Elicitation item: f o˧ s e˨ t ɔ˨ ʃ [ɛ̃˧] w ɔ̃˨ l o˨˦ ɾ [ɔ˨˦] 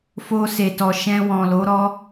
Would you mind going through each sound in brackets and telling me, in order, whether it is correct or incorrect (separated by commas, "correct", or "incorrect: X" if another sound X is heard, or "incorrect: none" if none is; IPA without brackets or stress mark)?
correct, incorrect: ɔ˦